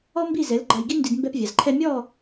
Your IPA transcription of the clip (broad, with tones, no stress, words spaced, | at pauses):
ɔ˥mbi˥˩zɛ˩˥l ɡ͡ǃa˧jɡi˥ndi˧d mbɛ˧pvʲa˩zǃʰɛ˧ mʲɔ˥˩